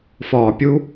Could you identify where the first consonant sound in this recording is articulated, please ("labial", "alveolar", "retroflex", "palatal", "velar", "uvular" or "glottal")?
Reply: labial